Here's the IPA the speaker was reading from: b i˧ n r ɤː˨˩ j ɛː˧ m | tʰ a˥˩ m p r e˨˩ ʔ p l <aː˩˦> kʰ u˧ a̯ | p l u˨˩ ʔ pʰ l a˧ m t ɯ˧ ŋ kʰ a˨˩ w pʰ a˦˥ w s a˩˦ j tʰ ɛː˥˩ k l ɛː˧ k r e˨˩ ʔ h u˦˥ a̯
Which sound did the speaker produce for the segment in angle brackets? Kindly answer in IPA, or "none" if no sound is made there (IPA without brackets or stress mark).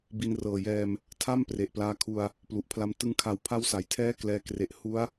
aː˧